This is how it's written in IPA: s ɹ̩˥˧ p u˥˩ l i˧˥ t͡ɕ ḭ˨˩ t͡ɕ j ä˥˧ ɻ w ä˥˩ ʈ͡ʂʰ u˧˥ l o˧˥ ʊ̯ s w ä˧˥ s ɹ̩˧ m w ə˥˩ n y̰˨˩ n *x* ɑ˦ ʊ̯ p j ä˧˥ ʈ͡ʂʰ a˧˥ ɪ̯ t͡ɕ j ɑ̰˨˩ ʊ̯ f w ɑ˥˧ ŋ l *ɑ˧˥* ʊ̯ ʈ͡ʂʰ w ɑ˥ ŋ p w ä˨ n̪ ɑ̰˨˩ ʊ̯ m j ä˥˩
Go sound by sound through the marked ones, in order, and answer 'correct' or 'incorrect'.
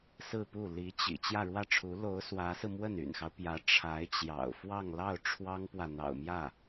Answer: correct, incorrect: ɑ˥˩

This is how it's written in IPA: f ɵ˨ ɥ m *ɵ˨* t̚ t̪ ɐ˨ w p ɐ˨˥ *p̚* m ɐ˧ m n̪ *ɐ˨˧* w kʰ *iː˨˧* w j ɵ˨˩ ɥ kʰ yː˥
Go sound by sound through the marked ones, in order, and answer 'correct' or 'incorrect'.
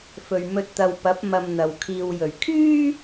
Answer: incorrect: ɵ˧, correct, incorrect: ɐ˨, incorrect: iː˨

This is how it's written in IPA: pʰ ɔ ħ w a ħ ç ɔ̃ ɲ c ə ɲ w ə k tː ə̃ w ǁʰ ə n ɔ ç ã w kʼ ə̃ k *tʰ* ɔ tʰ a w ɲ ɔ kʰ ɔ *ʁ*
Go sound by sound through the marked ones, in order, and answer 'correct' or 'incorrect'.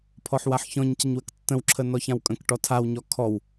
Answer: incorrect: ʈ, incorrect: w

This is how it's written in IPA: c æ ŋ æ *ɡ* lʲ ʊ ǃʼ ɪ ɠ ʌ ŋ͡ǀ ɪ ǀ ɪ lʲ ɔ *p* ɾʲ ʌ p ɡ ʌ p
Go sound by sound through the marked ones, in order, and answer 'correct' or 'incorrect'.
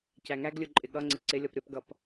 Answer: correct, correct

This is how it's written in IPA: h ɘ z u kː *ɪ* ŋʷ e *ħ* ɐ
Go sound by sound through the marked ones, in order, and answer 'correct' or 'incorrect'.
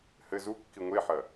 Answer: incorrect: i, correct

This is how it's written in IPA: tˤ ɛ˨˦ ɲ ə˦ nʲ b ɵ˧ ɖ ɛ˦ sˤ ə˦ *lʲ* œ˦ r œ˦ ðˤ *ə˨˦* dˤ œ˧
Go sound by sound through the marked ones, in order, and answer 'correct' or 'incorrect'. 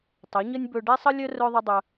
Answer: correct, incorrect: ə˦

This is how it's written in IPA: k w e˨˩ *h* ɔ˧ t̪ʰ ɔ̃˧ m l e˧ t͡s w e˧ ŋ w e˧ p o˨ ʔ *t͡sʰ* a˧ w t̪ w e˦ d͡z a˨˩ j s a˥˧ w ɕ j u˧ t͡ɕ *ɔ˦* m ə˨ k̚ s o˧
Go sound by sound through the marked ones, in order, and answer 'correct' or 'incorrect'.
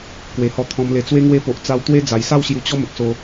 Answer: correct, incorrect: t͡s, correct

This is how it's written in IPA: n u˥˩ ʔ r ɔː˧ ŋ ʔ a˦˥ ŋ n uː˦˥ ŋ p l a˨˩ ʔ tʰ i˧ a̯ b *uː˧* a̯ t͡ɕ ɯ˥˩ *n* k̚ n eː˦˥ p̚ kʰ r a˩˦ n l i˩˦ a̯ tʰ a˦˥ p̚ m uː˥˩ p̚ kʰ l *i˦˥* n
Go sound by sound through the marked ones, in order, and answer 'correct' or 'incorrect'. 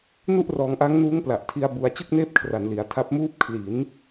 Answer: incorrect: u˧, incorrect: none, incorrect: i˩˦

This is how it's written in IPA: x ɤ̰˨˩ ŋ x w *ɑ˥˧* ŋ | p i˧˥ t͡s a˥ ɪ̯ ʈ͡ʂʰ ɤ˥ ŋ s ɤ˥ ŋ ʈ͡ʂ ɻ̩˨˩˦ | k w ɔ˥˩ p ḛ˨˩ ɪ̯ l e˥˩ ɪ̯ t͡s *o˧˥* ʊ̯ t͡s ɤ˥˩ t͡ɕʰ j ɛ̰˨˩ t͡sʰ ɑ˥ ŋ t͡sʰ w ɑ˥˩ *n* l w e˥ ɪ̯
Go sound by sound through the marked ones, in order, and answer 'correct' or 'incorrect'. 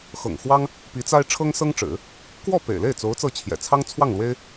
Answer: incorrect: ɑ˥, correct, incorrect: ŋ

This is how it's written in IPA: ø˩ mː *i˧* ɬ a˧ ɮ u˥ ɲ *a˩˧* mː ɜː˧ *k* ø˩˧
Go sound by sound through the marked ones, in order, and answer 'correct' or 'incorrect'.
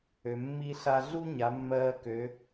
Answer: correct, correct, correct

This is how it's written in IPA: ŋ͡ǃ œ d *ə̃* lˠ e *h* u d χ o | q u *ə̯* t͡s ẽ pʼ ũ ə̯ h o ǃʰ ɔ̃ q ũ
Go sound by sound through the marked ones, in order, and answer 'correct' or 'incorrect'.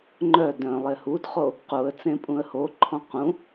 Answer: incorrect: œ̃, correct, correct

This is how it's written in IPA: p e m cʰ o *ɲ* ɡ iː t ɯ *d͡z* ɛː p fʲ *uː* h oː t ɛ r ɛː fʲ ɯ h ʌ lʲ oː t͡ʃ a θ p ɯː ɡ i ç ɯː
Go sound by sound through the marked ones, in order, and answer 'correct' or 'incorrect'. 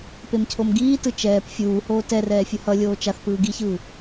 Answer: incorrect: m, incorrect: t͡ʃ, correct

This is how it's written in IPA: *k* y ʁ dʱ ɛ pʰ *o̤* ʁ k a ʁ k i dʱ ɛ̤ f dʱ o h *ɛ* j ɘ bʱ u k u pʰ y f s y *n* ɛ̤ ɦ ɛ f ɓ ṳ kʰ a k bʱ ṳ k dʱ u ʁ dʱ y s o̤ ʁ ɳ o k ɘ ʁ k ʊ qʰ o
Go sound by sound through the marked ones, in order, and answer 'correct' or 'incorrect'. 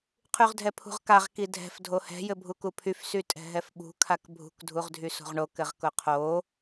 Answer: incorrect: qʰ, incorrect: ṳ, incorrect: ɛ̤, incorrect: tʼ

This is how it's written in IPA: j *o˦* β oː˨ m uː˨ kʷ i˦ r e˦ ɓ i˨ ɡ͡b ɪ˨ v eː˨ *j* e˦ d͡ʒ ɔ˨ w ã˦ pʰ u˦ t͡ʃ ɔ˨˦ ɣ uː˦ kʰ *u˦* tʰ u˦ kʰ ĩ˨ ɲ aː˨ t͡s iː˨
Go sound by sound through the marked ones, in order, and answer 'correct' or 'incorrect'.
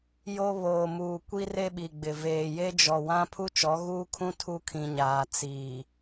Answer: correct, correct, incorrect: ũ˦

